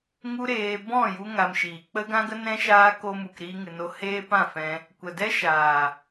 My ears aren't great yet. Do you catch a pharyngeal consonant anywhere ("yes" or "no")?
no